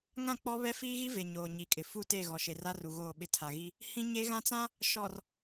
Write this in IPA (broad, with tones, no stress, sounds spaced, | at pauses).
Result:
ŋ ã˦˨ k͡p ɔ˦ β ɛ˦ f iː˦ ɣ i˦ v e˨ ɲ oː˨ ɲ i˨ kʼ ɪ˨ f u˦˨ t e˦˨ ɣ ɔ˨ ʃ e˨ r a˦ r u˨ ɣ oː˦˨ ɓ ɪ˦ tʰ a˨ ɣ i˦ | h ĩ˦ ɲ e˦ ɣ ã˦ t͡s ã˦ | ʃ ɔ˨ r